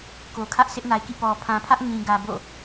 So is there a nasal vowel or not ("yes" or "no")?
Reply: yes